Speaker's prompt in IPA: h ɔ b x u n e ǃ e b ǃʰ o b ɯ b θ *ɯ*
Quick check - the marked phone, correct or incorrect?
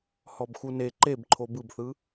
correct